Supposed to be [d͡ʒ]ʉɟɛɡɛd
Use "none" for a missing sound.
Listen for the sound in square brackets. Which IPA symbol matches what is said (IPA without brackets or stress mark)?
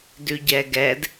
d